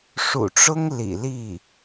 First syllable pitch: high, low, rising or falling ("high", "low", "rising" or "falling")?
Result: low